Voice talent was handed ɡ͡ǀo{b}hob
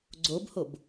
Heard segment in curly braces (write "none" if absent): b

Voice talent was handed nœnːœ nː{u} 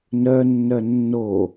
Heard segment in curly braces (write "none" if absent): o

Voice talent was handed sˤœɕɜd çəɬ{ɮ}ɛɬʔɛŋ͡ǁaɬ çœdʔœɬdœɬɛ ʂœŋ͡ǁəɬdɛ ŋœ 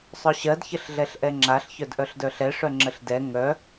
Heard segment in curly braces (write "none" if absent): ɮ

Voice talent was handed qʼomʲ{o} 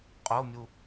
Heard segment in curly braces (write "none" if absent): u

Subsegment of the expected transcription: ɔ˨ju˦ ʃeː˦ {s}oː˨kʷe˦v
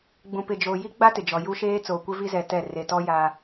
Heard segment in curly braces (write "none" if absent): t͡s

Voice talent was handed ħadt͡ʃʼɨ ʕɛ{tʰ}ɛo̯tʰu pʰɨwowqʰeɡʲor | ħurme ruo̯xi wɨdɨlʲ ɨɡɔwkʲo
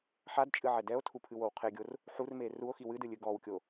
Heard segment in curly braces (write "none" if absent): d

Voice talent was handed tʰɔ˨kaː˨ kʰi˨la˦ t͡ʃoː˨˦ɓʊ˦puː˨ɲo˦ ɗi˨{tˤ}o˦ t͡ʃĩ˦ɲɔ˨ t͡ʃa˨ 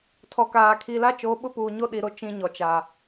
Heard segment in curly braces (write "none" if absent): ɾ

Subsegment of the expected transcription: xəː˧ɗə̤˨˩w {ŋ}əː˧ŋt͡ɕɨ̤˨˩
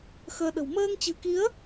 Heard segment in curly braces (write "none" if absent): m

